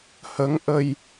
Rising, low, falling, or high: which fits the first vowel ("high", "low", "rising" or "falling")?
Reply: rising